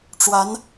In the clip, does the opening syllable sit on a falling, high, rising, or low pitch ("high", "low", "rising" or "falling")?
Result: rising